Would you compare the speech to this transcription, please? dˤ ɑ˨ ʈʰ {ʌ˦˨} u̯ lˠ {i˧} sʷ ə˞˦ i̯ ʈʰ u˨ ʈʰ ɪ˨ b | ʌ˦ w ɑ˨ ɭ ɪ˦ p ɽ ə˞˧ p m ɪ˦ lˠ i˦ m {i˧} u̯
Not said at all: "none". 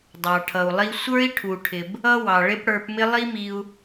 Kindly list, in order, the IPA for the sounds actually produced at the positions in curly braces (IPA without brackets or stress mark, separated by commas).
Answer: ʌ˨, i˧, i˧